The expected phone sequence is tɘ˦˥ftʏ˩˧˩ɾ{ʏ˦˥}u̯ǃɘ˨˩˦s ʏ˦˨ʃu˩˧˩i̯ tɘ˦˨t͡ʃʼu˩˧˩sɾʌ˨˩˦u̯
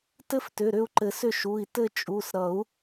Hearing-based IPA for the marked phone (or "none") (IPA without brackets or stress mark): ʏ˦˨